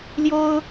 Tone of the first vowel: high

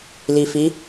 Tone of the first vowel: low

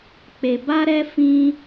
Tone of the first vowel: low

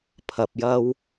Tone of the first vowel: low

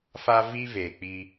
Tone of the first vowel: high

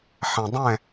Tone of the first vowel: low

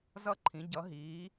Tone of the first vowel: high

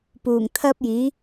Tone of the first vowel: low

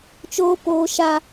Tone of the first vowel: high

